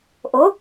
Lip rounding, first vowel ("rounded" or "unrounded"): rounded